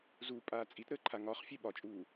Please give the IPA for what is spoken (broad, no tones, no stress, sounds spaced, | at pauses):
z u pʼ aː t͡sʼ i t ɾ əː ǃʰ a ŋ ɒ χ fʲ e ɓ ɒ t͡ʃʼ uː